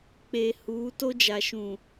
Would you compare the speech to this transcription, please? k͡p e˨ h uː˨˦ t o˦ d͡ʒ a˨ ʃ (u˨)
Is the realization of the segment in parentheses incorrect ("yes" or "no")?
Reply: yes